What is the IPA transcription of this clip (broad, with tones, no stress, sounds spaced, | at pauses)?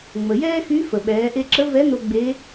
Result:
ŋ͡m ə˩ j ɛː˥ x y˧˥ f ə˩ ɓ ɛː˩˧ ʔ e˧ ǁ ə˧˥ v ɛ˧˥ n o˧ ɡ͡b e˧˥